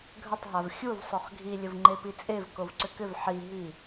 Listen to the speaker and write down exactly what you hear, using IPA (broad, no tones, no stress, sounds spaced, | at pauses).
ɡʱ ə tˤ ɦ a v xʲ u v sˤ o χ ɡʱ i lʲ ə v ŋ͡ǃ e p i t͡sʼ e v k o v ǀ ʏ k ʏ v ħ i ɦ i